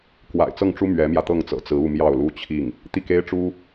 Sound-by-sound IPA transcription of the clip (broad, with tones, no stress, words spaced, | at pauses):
kwa̰˨˩ɪ̯t͡sɤ˥˩ŋʈ͡ʂu˥ mɥɛ˧˥mjä˧t̪ɤ˥˩ŋt͡sɤ̰˨˩ t͡sɹ̩˧˥u˥˧mjɑ˥˩ʊ̯ lu˥t͡ɕʰi˥˩ŋ | t̪i˥˩ke˥ɪ̯ʈ͡ʂu˥